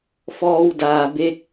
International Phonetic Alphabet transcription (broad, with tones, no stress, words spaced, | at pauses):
fɔː˧wdaː˩be˧k̚